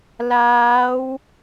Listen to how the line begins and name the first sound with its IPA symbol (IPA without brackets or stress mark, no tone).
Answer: l